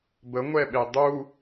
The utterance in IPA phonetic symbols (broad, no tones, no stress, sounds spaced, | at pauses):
b ə ŋʷ ɛ ɓ e dˤ u